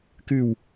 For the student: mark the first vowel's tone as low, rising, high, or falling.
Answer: falling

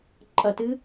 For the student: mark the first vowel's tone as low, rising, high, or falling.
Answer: falling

